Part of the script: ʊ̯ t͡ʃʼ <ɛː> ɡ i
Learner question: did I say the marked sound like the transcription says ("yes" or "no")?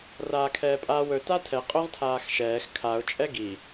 no